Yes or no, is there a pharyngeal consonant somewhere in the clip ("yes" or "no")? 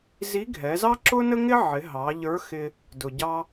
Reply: yes